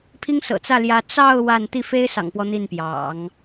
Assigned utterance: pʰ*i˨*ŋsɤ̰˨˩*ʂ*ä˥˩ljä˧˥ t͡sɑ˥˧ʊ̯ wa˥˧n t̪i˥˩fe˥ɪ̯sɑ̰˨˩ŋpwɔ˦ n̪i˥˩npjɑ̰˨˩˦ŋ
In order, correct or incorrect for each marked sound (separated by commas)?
incorrect, incorrect